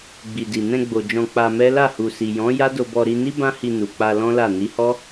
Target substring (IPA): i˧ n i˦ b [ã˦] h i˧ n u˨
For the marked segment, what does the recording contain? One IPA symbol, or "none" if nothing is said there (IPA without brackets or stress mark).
ã˦